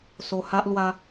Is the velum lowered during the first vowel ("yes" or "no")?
no